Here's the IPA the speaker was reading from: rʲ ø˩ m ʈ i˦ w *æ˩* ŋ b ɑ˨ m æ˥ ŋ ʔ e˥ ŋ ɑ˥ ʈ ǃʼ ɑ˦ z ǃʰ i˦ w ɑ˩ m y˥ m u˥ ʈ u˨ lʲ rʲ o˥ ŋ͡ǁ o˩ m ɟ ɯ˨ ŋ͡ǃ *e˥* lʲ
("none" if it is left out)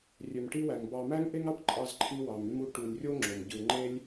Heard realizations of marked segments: æ˩, e˥

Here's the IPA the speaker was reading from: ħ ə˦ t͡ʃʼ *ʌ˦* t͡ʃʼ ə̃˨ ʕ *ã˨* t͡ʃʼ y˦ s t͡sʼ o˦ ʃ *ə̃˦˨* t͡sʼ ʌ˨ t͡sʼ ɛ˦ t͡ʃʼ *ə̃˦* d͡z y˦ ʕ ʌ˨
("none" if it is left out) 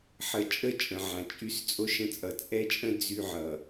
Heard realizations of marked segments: ə˦, ã˨, ə̃˦, ə̃˦

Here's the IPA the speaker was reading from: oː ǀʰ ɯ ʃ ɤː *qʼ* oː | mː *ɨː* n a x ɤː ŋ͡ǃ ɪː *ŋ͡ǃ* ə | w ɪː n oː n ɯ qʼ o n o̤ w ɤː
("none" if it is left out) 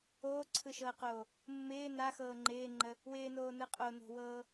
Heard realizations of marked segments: q, ɪː, ŋ͡ǃ

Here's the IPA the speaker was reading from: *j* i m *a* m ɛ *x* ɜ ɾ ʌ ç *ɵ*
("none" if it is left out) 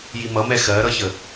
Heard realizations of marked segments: j, ʌ, x, ə

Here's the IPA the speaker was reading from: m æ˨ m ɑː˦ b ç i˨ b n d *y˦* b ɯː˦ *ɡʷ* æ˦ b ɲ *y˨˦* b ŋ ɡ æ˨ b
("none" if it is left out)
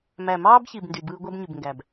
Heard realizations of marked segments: y˨, ɡʷ, y˨

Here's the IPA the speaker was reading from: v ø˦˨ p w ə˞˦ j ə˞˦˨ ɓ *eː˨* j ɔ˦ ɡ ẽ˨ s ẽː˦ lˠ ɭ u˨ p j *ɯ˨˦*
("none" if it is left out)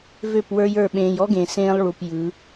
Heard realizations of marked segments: ẽː˨, ɯ˨˦

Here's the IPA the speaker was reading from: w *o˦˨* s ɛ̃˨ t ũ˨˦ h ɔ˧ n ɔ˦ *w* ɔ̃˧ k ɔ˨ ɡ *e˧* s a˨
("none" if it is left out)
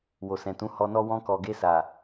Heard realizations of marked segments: o˨, w, e˧

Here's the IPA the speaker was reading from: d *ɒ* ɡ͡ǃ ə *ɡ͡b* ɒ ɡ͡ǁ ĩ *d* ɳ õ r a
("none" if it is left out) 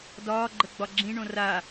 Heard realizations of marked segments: ɒː, ɡ͡b, none

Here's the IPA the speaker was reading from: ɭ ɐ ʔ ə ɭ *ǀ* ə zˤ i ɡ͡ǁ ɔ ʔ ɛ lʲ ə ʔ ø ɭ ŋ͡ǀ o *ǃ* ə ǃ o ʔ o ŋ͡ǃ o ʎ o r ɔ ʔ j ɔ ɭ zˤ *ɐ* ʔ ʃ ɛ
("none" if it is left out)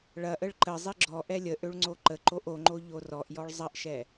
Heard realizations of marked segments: ǃ, ǃ, ɐ

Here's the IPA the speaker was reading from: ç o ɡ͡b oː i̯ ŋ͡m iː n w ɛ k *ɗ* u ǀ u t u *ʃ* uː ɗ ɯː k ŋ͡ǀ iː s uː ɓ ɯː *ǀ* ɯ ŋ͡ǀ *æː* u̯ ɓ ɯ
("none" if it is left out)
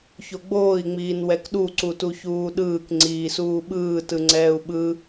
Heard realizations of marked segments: ɗ, ç, t, ɛː

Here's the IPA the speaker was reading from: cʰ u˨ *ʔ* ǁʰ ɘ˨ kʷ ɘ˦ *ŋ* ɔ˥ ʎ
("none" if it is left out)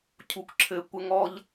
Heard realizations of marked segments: k, ŋ

